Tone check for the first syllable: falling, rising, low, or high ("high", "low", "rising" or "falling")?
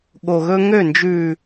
low